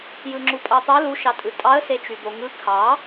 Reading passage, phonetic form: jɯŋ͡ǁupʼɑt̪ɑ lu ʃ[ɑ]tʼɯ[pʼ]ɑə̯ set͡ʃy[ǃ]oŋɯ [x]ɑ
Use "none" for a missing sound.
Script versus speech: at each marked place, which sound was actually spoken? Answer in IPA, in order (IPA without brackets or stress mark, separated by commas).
ɑ, tʼ, d̪, kʰ